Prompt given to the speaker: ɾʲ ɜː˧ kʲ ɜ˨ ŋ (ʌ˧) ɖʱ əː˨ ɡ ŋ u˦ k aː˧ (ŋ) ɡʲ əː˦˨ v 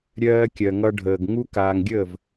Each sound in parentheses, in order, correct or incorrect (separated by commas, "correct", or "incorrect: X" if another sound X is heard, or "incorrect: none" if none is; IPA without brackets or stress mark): correct, correct